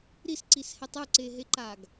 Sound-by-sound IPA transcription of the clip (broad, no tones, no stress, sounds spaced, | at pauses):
ɾ i s ǀ i s h ɛ tˤ u ǀ e ɦ e ǃ a ɡ